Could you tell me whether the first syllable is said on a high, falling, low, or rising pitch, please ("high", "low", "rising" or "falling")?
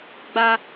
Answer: high